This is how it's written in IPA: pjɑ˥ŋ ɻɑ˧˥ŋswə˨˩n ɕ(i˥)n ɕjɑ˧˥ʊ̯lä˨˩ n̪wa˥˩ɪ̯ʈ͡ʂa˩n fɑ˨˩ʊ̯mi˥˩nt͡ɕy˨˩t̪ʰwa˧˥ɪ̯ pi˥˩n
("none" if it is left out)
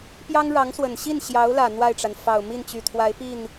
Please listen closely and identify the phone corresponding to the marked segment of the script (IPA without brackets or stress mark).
i˥˩